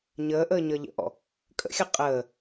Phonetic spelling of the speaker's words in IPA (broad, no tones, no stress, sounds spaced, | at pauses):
ɲ əː ʔ əː ɲ ʌ ʎ ə̰ ʔ ɔ̰ | kʼ ə̰ xʲ ʌ qʼ əː